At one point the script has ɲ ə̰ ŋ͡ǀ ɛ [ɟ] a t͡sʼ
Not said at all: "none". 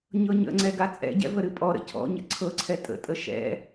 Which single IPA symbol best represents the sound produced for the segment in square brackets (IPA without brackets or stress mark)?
ɡ